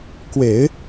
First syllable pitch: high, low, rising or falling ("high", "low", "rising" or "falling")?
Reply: low